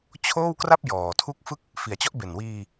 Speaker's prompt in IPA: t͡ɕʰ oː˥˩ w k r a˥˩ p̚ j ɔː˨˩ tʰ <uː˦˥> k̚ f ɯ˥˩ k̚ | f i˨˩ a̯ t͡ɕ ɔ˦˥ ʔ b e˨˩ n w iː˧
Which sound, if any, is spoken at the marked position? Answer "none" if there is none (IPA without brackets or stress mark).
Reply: u˦˥